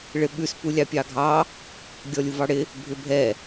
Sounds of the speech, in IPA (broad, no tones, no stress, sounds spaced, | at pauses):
ɭ ɪ ɓ ʉ s p u lʲ ɑ pʲ ɑ ɡʱ ɑ | ɡʲ ɔ lʲ u v ɑ ɽ ɪ | bʱ ɪ bʱ ɛ